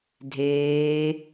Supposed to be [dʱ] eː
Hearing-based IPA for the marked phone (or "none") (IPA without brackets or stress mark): dʱ